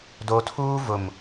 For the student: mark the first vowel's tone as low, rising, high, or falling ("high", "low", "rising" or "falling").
low